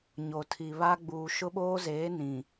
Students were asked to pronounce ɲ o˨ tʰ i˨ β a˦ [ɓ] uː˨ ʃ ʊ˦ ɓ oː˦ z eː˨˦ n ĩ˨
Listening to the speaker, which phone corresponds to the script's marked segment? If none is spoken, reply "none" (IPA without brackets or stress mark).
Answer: ɡ͡b